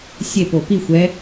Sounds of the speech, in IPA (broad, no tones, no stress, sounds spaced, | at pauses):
sʲ e p o p i xʷ ɛ